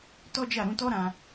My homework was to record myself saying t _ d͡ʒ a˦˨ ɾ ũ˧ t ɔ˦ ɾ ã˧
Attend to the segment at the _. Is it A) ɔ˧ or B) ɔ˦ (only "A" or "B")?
B